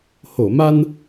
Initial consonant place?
glottal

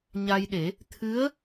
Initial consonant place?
palatal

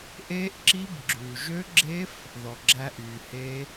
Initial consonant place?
glottal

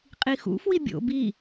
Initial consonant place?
uvular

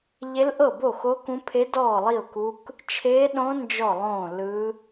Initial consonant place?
palatal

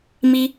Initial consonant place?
labial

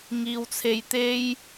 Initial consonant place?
velar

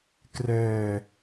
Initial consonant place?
velar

